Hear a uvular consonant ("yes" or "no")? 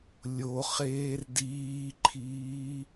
yes